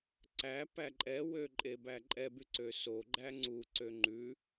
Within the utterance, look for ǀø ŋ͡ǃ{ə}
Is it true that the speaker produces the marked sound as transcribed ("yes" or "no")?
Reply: no